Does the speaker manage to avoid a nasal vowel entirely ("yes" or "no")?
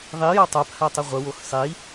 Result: yes